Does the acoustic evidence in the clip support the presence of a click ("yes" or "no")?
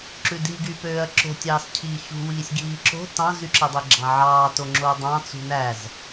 yes